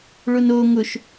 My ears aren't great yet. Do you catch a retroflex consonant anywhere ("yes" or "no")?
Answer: yes